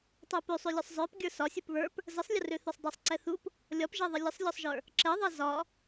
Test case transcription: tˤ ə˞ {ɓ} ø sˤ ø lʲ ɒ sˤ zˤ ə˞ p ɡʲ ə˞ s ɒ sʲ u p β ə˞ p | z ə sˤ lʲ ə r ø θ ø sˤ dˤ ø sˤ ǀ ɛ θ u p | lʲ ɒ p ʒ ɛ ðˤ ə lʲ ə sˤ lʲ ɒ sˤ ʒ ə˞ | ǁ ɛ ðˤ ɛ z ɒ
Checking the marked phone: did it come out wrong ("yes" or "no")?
yes